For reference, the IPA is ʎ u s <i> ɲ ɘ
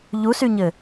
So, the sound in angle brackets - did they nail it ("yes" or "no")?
no